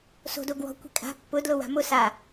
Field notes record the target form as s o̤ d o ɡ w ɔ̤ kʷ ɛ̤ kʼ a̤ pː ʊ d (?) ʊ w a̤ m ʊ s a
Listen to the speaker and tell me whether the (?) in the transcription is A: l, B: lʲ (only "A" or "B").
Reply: A